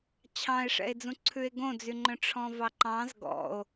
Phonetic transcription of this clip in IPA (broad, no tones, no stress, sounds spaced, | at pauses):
t͡ɕʰ ɑ̃ e̯ ʂ ɛ̰ e̯ d͡z ũ ǀʰ ʉ e̯ ɡ õ d͡z y ŋ͡ǃ œ̃ ʈ͡ʂʰ ɔ̃ v ɑ ǃ ɑ̃ z ɡ ɔ̰ o̯